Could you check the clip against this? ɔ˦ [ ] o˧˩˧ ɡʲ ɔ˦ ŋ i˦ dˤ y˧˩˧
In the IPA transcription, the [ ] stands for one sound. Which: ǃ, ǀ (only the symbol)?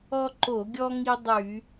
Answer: ǃ